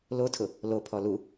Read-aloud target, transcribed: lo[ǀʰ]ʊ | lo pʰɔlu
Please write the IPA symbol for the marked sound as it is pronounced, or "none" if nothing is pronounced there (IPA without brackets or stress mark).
tʰ